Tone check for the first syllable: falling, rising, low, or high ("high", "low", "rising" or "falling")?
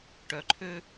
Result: low